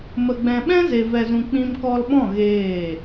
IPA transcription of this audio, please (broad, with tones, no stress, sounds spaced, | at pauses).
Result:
m ə˧ ɡ͡b ɛ̃˧ ɓ ɛ̃˦ z e˨ v ɛ˨ z ũ˨ k͡p ĩ˧ m k ɔ˧ l ɓ ɔ̃˦˨ ɣ eː˦˨